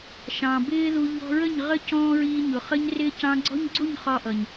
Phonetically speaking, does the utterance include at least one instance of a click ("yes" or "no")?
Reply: yes